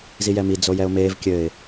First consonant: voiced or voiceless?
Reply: voiced